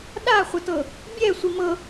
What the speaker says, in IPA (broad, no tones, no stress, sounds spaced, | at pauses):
ɗ a χʷ ə t ɤ | bʲ ɛ sʷ i m ɤ